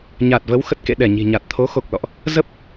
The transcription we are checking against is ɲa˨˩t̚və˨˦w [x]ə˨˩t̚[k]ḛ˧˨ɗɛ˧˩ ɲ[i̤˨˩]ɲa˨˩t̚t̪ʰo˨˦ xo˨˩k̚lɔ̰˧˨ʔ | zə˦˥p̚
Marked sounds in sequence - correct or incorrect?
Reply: correct, correct, correct

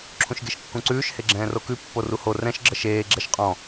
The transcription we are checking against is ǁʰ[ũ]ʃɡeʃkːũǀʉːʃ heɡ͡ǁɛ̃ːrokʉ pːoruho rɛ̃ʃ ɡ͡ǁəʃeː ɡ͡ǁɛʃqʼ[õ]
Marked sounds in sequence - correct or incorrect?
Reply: correct, incorrect

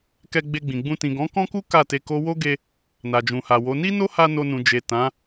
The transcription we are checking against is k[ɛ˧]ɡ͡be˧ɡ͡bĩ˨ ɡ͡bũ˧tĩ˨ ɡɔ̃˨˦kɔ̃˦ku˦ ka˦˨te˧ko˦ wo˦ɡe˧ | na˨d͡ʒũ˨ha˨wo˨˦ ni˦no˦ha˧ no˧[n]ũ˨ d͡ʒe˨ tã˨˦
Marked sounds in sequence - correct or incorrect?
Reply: correct, correct

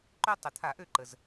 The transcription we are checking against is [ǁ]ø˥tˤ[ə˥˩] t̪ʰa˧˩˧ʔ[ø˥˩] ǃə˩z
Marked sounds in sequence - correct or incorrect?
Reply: incorrect, incorrect, correct

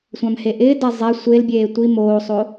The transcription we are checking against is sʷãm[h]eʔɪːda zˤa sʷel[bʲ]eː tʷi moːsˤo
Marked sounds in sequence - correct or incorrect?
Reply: correct, correct

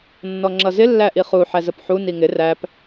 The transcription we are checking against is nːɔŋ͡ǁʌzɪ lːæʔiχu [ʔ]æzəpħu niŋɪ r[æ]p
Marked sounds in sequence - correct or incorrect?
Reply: incorrect, correct

